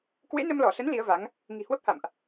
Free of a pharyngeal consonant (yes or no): yes